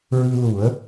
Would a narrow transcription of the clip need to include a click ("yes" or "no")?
no